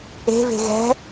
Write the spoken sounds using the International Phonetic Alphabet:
e̤ v e̤ ɣ ɛ̤

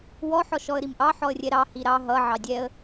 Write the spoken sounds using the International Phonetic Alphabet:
w ɔ ħ ɔ ʃ ɔ ə̯ ɾ i m ʔ ɑ ħ ɔ ə̯ rʲ ɛ ɾ ɑ h i ɾ ɑ ɦ ʌ ʕ ɑ dʲ ɛ ə̯

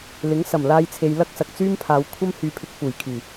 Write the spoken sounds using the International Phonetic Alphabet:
l ɪ˨˥ ŋ s ɐ˨˩ m l aː˧ j t͡sʰ e˨ j l ɐ˥ k̚ s ɐ˨ k̚ t͡s yː˥ m pʰ aː˨˧ w kʷʰ ɐ˥ m h yː˧ pʰ ɪ˧ k̚ f uː˨˩ j kʰ yː˨˩

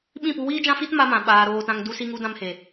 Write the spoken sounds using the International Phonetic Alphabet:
ɓ ĩ˦˨ p u˧ w iː˦ d͡ʒ ã˦ f i˦ t m a˧ m ã˨ ɓ aː˨ ɾ oː˨ t ã˨ ŋ d u˧ s i˧ ŋ u˧ d ã˧ m h e˨

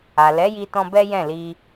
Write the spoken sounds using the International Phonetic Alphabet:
a˨ l ɛ˨˦ j i˧ t ɔ̃˧ b ɛ˦ j ɛ̃˦˨ l i˧

